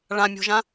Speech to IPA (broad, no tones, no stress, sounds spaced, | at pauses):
ɭ ã mʲ o̤ ʒ ã